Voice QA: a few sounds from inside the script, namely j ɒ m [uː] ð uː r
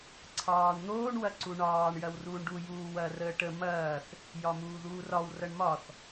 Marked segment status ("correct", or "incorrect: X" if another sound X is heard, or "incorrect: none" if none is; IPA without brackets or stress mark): correct